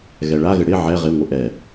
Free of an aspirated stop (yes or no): yes